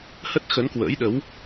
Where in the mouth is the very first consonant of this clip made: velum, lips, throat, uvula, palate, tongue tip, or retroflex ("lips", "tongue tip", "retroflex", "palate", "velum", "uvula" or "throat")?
throat